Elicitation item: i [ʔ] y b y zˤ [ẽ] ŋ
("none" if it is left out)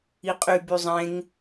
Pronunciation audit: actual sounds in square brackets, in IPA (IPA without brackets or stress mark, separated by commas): qʼ, ẽ